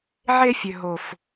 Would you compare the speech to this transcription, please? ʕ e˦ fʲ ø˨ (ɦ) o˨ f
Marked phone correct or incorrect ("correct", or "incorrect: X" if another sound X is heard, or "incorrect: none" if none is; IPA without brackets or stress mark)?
correct